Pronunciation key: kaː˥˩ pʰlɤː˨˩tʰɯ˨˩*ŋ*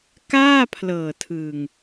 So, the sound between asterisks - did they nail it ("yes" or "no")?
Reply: yes